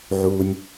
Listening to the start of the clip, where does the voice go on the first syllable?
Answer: low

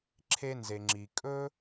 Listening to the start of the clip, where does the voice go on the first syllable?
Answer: high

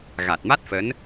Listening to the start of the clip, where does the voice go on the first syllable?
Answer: low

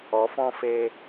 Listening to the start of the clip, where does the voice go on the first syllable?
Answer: rising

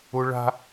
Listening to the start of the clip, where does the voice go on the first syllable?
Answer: high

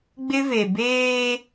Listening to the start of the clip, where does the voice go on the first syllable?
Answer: high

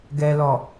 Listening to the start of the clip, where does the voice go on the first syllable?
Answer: low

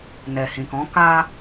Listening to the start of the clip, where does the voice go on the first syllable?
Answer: low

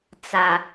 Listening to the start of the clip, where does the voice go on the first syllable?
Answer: low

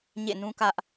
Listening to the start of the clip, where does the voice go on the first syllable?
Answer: falling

